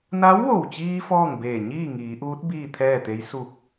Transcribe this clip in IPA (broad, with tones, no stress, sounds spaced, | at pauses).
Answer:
n a˧˥ w ʋ o˧˩ w t͡ɕ iː˧ f ɔː˥˨ ŋ b eː˧˩ ɲ iː˥˨ ŋ iː˩˧ ʔ uː˧˥ t̚ b iː˥˨ t̪ʰ ɛː˥˨ t̪ e˧˥ j s u˧˩ k̚